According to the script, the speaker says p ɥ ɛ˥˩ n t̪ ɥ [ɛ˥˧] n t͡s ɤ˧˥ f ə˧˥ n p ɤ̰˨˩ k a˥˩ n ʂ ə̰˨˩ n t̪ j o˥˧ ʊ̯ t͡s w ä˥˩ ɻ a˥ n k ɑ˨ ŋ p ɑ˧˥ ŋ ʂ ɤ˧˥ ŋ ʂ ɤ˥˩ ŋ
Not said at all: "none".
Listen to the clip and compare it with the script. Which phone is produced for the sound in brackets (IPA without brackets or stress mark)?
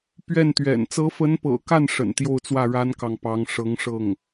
ɛ̰˨˩